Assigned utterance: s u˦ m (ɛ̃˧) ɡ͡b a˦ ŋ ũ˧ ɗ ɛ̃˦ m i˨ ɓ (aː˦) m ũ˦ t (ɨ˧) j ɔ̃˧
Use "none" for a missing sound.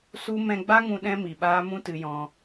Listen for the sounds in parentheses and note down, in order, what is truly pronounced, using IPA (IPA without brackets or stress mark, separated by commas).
ɛ̃˧, aː˦, ɨ˧